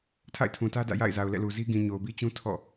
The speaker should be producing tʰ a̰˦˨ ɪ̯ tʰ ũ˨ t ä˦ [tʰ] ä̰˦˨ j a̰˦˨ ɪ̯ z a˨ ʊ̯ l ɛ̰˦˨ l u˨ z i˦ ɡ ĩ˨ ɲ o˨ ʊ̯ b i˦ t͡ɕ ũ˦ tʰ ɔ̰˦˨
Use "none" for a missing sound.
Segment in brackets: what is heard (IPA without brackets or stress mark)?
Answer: d